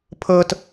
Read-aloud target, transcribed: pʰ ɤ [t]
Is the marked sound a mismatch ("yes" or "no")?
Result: no